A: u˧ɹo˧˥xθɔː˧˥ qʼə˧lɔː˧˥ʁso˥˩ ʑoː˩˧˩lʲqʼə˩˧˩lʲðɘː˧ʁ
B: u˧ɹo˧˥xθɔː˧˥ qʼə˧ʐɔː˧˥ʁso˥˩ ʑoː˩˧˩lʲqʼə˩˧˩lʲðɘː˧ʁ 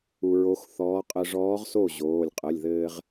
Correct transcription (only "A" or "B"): B